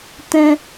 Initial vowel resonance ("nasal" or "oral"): nasal